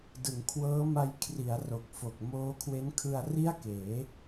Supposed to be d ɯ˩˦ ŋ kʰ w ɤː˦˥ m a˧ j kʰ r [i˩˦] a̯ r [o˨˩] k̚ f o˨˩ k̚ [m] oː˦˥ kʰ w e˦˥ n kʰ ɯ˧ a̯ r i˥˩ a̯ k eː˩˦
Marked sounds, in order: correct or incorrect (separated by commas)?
correct, correct, correct